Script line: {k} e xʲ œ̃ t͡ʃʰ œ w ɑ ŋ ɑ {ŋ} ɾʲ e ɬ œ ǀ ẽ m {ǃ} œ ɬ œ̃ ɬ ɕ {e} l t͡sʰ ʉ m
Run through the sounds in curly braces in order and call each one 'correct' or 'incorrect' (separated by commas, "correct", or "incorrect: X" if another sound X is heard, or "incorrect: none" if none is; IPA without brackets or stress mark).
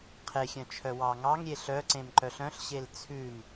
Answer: incorrect: qʰ, correct, correct, correct